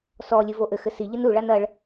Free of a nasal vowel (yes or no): yes